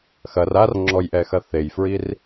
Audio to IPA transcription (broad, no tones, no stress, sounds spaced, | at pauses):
x ɐ r a r ŋ͡ǁ ɔ j ʔ ɛ x ɐ θ e j f ɹ i r